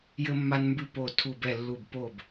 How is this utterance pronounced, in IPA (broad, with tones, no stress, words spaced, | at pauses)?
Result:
jɘ˧mːa˧nmbʉ˧ po˧˩tʰu˧˩bɛ˧˩lːu˧˩b po˧˩b